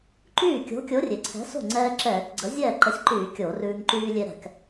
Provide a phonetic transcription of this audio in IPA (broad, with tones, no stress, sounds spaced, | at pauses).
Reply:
ǃ yː˥˩ kʲ o̤˨˥ kʲ o˨˥ rʲ e˩ ǀʰ ɛ̤˨˥ s o̤˥˩ ŋ͡ǀ ɛː˧ ǁ ɛː˧˩˧ k ɡ͡ǀ ə˨˥ zʲ ɛː˥˩ ǃ ə˨˥ sʲ ǃ yː˧˩˧ kʲ o˧˩˧ r ʉː˧ ŋ ǃ yː˧ lʲ e˧ ɾ ɛ̤˧˩˧ k